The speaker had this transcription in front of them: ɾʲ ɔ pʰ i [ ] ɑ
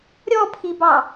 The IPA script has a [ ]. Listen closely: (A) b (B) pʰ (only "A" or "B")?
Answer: A